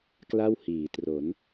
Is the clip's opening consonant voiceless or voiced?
voiceless